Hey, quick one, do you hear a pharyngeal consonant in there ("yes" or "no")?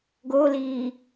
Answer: no